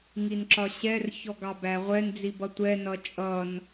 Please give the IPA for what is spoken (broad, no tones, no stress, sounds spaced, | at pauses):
ŋ i n ǁ ɒ ɕ ɛ r ç ɔ ɡ ɑ b æ ʁʷ ɛ n d͡z i b ʌ tʷ ɛ n ʌ t͡ʃʼ ʌ n